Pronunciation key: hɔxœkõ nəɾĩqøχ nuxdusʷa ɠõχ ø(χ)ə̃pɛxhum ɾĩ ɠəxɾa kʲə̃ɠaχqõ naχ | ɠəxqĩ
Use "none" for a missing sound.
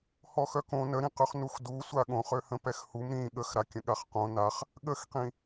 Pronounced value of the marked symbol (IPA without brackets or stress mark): h